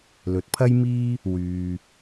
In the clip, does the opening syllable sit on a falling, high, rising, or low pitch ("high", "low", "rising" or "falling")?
rising